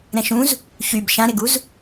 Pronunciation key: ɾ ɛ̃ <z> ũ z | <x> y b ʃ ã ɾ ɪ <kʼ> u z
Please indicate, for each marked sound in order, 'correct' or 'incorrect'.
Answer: incorrect, incorrect, incorrect

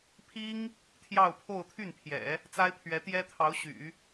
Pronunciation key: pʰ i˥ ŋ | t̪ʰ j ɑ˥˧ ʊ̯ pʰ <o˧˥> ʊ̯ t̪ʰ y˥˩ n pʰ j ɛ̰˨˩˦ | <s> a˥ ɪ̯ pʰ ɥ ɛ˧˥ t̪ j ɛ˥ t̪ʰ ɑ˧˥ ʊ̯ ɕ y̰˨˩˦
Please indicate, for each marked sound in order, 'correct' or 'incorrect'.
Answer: incorrect, incorrect

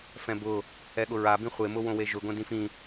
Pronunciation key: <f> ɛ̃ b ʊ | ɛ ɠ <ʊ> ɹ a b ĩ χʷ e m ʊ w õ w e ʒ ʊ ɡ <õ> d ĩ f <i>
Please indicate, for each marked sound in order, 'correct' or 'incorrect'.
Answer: correct, correct, correct, incorrect

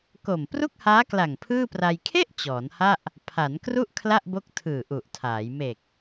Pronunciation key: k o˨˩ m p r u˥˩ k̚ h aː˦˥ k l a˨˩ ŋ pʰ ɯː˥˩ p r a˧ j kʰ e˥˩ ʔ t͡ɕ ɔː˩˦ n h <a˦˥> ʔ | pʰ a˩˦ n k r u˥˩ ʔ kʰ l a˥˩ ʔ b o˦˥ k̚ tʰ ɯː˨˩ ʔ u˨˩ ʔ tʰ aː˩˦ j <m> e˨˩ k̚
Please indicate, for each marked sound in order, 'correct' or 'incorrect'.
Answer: incorrect, correct

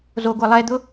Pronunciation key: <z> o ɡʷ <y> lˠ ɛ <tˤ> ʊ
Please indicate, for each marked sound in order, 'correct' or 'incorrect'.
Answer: correct, incorrect, incorrect

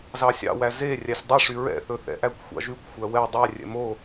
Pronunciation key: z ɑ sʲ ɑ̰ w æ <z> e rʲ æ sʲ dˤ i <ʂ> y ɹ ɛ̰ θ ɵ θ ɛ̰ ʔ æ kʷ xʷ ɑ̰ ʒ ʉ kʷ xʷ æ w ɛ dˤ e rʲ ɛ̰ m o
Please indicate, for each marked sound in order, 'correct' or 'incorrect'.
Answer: correct, correct

